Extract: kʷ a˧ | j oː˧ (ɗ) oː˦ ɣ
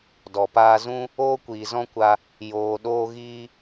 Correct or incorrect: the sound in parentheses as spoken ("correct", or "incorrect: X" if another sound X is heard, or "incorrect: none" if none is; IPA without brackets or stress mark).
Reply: correct